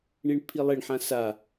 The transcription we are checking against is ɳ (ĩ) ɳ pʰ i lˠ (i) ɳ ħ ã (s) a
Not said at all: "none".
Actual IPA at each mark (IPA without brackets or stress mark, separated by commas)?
i, e, s